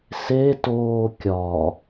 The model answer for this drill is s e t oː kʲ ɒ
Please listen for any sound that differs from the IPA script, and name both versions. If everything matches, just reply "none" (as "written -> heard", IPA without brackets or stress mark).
none